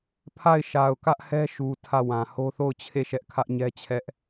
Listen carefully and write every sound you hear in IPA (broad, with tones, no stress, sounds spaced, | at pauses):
pʰ a˦˨ ɪ̯ ʃ a˨ ʊ̯ k ä˦ ʔ h ɛ˦ ʃ u˨ tʰ ä˦˨ w ã˨ h o˦ θ o˦˨ ʊ̯ t͡ɕʰ e˦˨ ʃ ɛ˦ ʔ kʰ ä˦ ʔ ɲ ɛ˦ t͡ɕʰ ɛ˦ ʔ